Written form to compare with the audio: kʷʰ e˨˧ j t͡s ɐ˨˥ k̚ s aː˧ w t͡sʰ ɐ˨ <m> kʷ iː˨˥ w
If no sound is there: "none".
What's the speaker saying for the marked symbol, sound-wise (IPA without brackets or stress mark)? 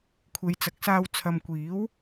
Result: m